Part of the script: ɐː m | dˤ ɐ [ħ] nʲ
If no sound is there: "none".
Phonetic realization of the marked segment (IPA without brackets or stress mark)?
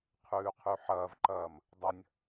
none